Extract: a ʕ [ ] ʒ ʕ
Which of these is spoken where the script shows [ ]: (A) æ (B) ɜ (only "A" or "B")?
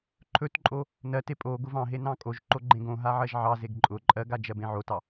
B